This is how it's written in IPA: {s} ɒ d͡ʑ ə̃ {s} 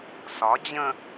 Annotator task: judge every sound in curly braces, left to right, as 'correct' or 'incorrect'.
correct, incorrect

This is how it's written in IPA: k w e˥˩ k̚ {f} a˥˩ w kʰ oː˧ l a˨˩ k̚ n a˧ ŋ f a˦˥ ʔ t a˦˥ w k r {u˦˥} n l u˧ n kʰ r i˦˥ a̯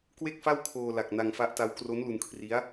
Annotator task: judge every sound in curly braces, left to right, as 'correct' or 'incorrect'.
correct, incorrect

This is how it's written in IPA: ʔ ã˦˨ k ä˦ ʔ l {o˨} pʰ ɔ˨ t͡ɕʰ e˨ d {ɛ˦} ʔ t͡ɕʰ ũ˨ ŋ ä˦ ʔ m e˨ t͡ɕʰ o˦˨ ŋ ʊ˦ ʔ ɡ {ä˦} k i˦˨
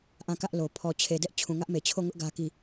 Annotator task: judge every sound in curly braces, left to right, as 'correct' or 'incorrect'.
correct, correct, correct

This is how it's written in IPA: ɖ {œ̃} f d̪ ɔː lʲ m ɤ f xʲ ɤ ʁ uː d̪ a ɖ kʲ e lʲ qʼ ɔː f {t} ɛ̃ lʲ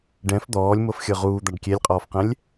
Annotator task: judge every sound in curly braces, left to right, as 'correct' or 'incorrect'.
incorrect, incorrect

